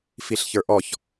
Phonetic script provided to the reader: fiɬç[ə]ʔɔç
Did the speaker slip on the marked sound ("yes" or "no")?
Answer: yes